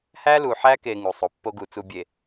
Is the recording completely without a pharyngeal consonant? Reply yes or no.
no